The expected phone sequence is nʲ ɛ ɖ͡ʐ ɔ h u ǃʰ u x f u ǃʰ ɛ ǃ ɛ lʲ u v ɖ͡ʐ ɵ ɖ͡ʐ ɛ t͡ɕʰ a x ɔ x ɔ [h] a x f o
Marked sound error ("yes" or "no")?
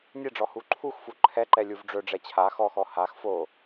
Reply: no